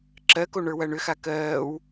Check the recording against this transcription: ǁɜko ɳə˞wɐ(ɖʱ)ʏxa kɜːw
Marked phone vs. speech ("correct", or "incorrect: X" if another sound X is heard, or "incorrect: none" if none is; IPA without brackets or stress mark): incorrect: ɳ